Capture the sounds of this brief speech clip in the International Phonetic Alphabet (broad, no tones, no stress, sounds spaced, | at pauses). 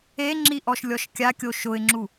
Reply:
e ŋ͡ǁ i ʔ ɔ ʃ lʲ ɔ ʃ kʲ a kʲ o ʃ ʊ ɪ̯ ŋ͡ǁ u